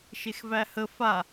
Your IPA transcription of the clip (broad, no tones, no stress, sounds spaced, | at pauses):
ʃ e x v æ h ə f a